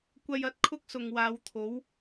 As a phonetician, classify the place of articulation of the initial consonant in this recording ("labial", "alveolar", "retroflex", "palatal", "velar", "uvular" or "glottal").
velar